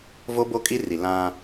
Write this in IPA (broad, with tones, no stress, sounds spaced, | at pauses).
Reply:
v o˦ b o˦ kʼ i˦ r i˨ l ã˦